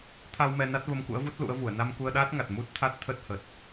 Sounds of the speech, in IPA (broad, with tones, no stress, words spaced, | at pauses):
t̪ʰa˧w mɛ˧na˦˥t̚ və˧mkṵ˧˥ə̯vu˦˥t̚ lṵ˧˥ə̯vu˧˩ə̯ na˧mku˧ə̯ɗaː˦˥t̚ŋa˨˩t̚ mu˦˥t̚t̪ʰa˦˥t̚t̪ʰə˦˥t̚hə˨˩t̚